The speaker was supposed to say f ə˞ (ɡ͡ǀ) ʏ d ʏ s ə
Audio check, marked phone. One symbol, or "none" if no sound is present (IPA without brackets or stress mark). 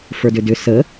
d